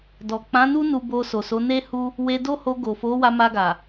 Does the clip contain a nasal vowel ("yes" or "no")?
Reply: yes